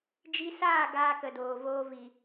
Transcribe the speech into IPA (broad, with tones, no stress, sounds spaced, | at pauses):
d͡ʒ i˧ s aː˦˨ ɡ aː˦ k ə˧ d oː˨ v oː˦ v i˨